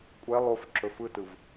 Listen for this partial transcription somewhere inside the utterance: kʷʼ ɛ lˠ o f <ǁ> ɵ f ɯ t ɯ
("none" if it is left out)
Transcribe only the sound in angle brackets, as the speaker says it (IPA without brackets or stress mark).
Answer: ǁ